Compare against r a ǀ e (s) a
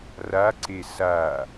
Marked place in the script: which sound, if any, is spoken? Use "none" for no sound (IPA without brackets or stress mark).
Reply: s